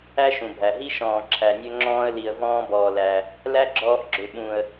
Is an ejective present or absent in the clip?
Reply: absent